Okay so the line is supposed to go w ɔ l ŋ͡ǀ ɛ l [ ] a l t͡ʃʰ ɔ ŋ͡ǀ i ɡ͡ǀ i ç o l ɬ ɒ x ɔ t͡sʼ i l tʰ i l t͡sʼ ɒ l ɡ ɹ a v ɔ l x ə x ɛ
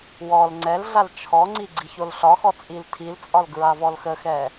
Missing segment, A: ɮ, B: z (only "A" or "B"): A